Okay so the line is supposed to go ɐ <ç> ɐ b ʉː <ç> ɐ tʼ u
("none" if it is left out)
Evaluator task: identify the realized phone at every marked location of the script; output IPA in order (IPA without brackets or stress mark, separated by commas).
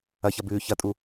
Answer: ç, ç